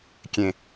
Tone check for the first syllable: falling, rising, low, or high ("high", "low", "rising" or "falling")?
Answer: low